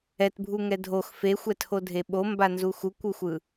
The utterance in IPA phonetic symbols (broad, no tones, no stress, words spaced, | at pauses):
ɛtbʱuŋɛ dʱox fexʷɛtʰodʱe ɓombanzu xukʷuxʷɯ